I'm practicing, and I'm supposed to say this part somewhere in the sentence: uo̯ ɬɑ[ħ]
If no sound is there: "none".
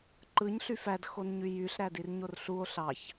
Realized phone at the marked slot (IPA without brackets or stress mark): ç